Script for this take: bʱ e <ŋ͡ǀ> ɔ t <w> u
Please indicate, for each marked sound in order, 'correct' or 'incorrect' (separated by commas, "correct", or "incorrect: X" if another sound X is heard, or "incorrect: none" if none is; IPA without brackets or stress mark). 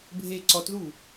incorrect: ǀ, incorrect: ð